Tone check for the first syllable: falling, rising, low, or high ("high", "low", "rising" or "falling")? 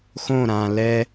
falling